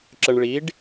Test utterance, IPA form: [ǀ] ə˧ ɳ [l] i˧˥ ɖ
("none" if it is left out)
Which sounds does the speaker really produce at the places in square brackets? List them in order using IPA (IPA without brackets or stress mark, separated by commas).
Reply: ǁ, ɭ